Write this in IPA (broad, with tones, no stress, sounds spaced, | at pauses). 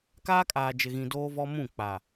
k aː˦ kʼ aː˨ d͡ʒ ɪ˨ ɣ ĩ˨ d oː˦ v ɔ˦ m ũ˦˨ k͡p a˨